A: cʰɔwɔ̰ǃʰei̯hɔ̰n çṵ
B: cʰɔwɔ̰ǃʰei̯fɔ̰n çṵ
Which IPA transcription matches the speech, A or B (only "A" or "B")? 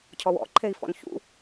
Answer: B